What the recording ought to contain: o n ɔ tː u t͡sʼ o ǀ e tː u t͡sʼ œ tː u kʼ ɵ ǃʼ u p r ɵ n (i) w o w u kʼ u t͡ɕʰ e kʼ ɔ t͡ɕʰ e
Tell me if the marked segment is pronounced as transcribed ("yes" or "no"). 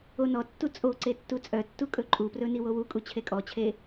yes